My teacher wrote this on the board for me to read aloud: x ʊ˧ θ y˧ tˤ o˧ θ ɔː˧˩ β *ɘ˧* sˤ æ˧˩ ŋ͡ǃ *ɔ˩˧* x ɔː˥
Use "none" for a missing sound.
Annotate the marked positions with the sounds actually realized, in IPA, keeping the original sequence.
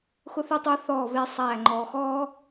e˧, ɔ˩˧

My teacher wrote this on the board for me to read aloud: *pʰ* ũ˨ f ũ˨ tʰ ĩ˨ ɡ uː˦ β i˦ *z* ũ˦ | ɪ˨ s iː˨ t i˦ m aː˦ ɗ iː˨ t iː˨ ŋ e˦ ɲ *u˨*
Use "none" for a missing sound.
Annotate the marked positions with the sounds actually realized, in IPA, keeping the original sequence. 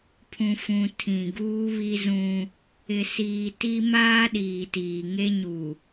pʰ, z, u˨

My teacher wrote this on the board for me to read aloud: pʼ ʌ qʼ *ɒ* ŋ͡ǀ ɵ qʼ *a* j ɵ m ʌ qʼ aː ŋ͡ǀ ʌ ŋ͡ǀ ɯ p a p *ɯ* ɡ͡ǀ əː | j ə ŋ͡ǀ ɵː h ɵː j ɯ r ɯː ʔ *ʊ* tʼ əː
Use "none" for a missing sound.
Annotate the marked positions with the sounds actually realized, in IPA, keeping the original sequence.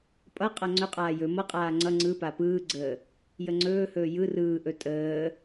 ʌ, aː, ɯː, ɵ

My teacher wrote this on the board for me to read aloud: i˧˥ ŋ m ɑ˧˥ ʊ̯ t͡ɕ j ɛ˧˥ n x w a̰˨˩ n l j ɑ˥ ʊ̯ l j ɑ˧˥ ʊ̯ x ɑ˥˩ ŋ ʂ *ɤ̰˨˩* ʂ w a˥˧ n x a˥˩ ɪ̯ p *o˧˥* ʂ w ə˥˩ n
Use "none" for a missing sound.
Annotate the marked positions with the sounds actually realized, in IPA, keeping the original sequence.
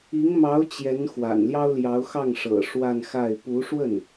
ɤ̰˨˩, u˧˥

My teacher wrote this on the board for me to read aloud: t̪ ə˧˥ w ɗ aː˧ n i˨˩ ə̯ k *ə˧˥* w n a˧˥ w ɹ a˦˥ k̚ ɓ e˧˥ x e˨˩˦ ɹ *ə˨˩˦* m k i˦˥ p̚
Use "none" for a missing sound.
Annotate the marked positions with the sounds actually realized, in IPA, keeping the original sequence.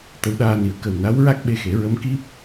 ə˨˩, ə˧˥

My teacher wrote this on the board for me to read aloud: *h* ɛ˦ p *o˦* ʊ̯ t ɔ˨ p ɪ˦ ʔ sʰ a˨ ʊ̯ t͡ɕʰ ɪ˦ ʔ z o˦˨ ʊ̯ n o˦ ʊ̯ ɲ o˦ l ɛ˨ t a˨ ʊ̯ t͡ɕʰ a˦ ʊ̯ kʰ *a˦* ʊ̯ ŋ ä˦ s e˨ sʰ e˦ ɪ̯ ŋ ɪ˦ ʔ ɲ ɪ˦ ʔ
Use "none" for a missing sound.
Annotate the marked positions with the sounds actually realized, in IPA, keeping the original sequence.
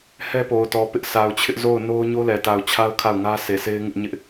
h, o˨, a˦˨

